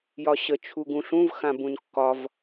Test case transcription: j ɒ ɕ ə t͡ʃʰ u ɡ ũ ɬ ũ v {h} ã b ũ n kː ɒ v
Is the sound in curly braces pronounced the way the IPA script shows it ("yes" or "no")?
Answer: no